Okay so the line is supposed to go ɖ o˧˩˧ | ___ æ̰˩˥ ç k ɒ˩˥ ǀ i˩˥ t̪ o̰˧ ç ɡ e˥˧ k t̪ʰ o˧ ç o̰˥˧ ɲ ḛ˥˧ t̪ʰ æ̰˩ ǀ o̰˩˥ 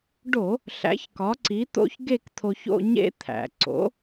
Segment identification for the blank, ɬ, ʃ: ɬ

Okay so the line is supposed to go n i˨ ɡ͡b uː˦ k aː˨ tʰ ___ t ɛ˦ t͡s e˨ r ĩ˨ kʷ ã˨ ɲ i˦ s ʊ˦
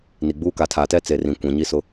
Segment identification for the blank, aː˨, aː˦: aː˨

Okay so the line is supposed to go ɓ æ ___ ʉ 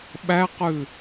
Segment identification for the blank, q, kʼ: q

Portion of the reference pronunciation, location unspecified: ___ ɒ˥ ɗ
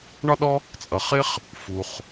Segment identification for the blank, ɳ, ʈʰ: ɳ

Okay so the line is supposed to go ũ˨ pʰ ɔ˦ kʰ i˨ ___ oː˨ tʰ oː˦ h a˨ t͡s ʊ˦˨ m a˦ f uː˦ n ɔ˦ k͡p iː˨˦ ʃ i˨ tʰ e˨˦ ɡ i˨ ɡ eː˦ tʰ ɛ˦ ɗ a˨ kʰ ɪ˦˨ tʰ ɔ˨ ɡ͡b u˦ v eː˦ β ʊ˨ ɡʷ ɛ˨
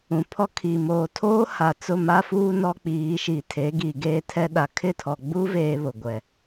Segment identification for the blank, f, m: m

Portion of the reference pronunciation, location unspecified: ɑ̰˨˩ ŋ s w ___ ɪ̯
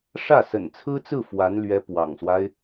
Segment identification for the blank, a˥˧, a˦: a˦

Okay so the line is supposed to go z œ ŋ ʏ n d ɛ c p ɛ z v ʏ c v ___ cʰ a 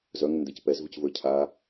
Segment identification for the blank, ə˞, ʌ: ə˞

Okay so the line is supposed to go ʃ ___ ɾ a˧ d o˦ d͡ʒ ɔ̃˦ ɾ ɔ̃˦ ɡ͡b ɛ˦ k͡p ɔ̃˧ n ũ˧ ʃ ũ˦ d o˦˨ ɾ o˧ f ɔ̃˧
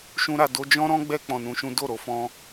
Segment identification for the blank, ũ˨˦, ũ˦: ũ˦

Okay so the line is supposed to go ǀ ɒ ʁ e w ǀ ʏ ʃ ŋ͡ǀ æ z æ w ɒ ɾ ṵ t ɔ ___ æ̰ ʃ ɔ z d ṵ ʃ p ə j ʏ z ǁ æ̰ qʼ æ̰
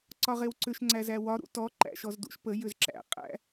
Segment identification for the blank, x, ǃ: ǃ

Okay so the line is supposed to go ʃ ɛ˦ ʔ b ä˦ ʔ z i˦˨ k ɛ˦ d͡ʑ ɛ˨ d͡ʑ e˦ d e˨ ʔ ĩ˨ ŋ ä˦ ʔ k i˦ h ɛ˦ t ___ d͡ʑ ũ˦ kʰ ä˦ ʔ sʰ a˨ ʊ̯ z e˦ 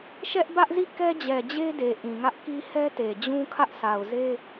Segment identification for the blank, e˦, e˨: e˨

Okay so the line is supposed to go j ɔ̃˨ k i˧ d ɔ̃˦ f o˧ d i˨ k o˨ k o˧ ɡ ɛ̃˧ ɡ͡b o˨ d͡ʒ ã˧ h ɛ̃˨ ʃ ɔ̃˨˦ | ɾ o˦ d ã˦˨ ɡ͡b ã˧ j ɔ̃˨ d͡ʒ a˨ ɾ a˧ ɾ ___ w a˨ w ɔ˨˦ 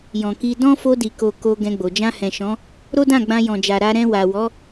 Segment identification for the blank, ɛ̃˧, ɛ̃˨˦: ɛ̃˧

